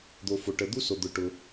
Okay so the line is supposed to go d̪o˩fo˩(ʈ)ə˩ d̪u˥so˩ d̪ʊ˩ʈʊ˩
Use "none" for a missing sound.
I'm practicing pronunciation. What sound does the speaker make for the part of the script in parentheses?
ʈ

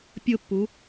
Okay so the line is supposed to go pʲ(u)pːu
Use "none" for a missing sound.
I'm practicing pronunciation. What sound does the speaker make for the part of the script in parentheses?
ʊ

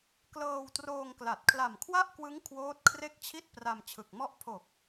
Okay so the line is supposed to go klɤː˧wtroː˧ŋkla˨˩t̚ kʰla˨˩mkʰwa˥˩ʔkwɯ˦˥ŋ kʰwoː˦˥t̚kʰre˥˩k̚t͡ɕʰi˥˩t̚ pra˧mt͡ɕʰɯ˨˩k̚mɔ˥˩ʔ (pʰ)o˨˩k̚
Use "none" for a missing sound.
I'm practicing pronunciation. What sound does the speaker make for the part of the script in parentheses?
pʰ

